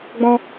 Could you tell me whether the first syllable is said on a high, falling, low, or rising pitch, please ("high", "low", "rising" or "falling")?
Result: high